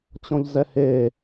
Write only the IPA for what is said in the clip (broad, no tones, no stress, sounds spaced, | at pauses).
t͡ɕ ɔ̃ ʎ z ɛ h eː